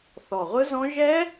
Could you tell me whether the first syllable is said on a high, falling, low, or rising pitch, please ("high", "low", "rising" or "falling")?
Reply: low